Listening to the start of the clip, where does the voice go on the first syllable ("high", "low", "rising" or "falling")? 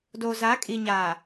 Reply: low